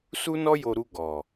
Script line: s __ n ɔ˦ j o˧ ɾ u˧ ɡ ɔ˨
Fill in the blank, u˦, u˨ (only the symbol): u˦